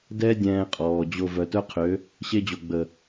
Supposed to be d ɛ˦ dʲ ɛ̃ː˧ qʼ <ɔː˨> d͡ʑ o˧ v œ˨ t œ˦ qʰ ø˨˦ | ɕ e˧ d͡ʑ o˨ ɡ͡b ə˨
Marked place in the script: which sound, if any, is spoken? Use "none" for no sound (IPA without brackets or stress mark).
ɔː˨